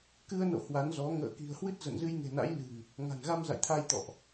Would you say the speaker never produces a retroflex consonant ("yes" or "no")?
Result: yes